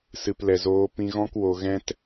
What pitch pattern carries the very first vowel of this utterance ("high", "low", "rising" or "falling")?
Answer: low